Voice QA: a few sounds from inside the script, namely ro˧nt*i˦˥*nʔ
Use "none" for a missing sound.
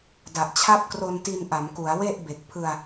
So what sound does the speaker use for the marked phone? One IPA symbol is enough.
i˧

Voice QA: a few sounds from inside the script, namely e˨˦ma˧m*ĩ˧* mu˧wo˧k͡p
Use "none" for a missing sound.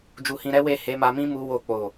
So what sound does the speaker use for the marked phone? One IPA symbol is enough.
ĩ˦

